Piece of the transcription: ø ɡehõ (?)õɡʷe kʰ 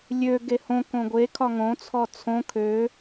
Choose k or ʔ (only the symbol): k